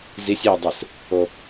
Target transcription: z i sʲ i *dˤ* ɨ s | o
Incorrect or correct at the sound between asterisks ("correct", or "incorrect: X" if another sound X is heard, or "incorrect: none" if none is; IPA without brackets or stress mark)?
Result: correct